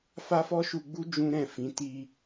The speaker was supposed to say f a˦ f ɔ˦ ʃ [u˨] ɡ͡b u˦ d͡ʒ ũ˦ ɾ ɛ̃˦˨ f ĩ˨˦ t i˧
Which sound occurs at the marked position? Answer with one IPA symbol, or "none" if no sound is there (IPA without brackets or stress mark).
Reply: u˧